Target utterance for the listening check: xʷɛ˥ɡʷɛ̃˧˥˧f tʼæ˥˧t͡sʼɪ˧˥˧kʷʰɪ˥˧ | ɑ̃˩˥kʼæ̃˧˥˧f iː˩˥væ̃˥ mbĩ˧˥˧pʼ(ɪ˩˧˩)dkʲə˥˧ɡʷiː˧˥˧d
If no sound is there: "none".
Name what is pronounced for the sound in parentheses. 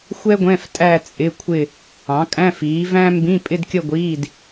ɪ˥˧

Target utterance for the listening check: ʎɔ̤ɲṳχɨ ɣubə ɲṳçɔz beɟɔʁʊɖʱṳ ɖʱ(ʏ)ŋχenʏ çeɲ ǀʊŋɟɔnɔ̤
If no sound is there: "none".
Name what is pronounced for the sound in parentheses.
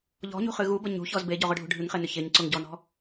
ɨ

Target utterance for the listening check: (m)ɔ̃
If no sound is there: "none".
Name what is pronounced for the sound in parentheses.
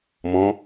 m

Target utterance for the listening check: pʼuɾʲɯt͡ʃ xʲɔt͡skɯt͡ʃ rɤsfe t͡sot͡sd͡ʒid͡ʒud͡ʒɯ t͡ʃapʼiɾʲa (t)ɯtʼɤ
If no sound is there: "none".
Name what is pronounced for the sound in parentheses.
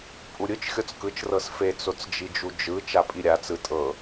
t͡s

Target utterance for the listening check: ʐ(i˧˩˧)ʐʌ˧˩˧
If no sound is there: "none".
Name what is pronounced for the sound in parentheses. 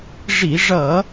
i˧˩˧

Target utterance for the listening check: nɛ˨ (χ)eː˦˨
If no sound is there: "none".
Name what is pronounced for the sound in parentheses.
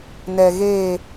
ɣ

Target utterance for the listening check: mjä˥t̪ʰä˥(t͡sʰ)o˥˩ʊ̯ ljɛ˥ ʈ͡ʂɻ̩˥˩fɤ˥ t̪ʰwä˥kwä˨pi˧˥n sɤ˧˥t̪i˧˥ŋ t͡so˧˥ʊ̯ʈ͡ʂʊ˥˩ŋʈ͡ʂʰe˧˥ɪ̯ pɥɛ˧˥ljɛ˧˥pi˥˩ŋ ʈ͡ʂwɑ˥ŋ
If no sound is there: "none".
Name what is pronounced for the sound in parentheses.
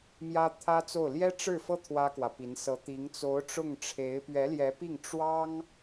t͡s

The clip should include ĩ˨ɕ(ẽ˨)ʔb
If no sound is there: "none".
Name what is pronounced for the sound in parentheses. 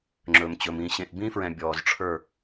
ẽ˨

